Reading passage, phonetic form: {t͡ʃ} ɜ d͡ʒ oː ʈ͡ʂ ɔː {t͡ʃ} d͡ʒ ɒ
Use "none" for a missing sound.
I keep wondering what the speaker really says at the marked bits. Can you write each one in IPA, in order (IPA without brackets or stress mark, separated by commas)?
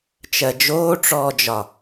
t͡ʃ, none